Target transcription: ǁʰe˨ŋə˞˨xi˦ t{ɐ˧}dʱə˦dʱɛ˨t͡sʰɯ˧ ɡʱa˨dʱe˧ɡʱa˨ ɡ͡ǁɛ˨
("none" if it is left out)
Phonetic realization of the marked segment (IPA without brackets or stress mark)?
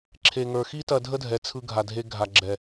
ɐ˧